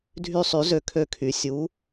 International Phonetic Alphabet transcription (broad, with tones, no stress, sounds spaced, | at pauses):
dʱ y˥˧ sˤ y˧˥ z ø˧ kʰ ø˥˧ kʰ y˧˩ sʲ u˧˥